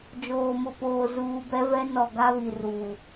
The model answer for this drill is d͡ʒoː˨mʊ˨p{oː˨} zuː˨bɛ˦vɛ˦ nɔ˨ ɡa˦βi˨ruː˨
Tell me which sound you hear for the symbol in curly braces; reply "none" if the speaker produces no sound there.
oː˨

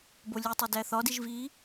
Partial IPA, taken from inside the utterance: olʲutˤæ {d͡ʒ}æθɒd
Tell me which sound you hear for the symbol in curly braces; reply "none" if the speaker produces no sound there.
d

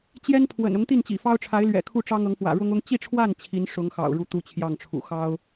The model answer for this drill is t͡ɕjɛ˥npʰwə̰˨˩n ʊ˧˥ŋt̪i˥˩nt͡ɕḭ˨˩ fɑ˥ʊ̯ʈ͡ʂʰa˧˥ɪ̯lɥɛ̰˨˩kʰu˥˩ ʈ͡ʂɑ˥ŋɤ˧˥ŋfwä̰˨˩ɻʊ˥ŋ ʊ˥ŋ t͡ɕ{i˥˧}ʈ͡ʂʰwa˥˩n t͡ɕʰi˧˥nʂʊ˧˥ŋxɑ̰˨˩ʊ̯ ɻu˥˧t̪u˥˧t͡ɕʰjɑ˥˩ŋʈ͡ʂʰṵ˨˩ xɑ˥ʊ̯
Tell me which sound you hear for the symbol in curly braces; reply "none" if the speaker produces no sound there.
i˥˧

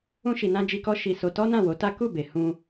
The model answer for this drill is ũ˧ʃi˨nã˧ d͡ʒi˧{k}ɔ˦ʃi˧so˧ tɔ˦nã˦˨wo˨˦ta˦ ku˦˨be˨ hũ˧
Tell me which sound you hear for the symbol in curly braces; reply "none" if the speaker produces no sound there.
k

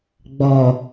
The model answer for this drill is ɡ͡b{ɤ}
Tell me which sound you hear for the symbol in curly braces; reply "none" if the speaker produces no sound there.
ɔ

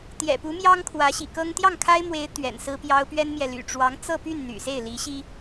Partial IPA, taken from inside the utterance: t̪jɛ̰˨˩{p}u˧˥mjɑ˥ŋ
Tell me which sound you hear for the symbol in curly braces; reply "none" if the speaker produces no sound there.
p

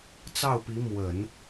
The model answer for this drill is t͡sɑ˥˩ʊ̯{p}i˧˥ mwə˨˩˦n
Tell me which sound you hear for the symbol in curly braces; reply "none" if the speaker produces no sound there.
p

